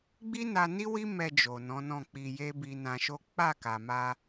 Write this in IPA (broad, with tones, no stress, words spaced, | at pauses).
ɡ͡bi˦na˧ni˦ wi˦mɛ˧ d͡ʒo˨nɔ̃˨˦nɔ̃˦˨ k͡pi˧je˦ bi˧nã˧ʃo˦ k͡pa˦˨ka˨ ma˧